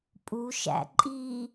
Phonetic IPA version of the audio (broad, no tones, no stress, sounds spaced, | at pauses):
pʼ u ʃ æ̰ ǃʼ i